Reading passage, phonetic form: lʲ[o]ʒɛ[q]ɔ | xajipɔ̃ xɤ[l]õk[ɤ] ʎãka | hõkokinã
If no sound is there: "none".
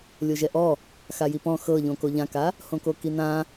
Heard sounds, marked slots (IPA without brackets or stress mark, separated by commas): o, ʔ, ʎ, o